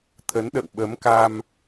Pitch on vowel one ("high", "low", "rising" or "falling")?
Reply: rising